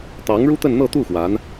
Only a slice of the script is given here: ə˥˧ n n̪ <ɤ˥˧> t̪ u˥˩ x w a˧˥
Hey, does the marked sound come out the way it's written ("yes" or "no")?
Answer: yes